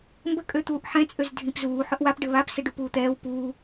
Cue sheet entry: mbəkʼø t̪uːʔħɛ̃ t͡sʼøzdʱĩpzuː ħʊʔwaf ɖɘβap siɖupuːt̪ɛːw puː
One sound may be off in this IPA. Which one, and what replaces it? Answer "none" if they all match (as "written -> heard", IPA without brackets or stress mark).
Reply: f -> p